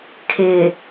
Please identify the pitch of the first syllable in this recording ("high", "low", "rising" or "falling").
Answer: low